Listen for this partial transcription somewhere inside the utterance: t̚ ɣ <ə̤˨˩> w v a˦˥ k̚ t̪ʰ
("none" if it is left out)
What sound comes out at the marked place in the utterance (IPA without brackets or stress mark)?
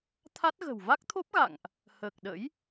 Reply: ə̤˨˩